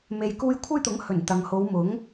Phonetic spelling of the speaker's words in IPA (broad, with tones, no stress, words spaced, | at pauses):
me˨j kuː˧j kʷʰɐ˥jt̪ʊ˨˥ŋ hɵ˨˩n t̪ɐ˨ŋho˨˧wmʊ˨˥ŋ